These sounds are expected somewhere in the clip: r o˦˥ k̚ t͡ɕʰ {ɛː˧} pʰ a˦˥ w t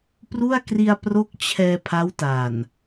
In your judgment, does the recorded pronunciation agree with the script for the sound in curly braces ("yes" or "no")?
yes